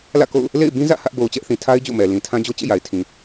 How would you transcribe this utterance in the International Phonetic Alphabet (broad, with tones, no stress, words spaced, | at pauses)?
lä̰˦˨ko̰˦˨ʊ̯ | lḛ˦˨ɪ̯bĩ˦zä̰˦˨ hä˦ʔbo˨ʊ̯t͡ɕɛ˦ʔθĩ˨ tʰa˦ɪ̯ d͡ʑo̰˦˨mɛ˨ lĩ˨tʰã˦ d͡ʑo˦t͡ɕḛ˦˨ja˨ɪ̯tʰĩ˨